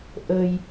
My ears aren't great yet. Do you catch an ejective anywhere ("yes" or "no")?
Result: no